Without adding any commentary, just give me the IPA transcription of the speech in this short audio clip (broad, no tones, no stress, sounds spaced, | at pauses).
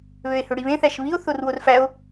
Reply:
β ø e̯ h ø ɽ i β ẽ θ æ ʃ β i o̯ θ o r w o r f æ o̯